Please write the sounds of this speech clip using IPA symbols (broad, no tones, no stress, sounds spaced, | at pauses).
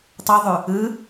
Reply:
tˤ u ðˤ ʉ | ɯ